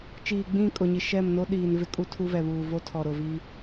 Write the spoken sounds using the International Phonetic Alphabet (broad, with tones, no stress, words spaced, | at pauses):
t͡ʃiː˨ɡ͡bĩ˦˨ kʼʊ˨ɲi˨ ʃɛ˦˨mno˦ ɗiː˨nvɪ˦ kʼu˦tʰu˦ vɛ˨βuː˨ vo˦tʰɔ˨ɾʊ˨ vi˦